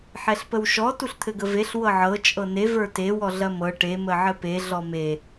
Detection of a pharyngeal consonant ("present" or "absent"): present